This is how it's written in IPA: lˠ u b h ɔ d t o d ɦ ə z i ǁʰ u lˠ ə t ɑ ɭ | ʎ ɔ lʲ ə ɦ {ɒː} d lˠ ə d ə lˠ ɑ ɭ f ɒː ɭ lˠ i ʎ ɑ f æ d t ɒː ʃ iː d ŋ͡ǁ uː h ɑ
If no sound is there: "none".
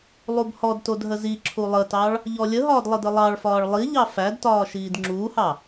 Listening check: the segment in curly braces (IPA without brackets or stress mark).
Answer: ɒː